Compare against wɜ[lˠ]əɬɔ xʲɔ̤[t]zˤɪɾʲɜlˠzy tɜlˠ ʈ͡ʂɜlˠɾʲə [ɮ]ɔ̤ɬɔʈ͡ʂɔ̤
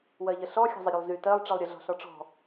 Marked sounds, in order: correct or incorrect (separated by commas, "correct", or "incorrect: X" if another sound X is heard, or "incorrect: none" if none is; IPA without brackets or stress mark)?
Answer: incorrect: ʎ, incorrect: none, correct